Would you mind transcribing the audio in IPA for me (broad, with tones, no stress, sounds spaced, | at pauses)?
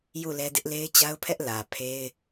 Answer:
j u˦˨ l ɛ˦ d ɪ˦ ʔ l e˦ ɪ̯ t͡ɕ a˦ ʊ̯ pʰ ɛ˦ ʔ l ä˨ pʰ e˦ ɪ̯